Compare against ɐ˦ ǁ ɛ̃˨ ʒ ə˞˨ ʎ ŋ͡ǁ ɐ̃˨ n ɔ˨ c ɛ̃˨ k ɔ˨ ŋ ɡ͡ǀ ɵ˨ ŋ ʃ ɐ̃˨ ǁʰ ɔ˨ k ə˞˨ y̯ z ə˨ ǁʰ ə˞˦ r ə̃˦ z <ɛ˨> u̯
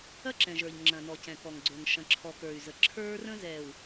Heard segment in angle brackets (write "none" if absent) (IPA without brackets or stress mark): ɛ˨